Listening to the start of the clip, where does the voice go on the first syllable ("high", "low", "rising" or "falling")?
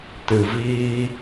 low